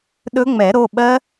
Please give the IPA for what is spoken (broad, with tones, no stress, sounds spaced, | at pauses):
ɗ ɵ˦˥ ŋ͡m ɛ˨˩˦ ɾ o˩˧˩ ɓ ɜ˦˥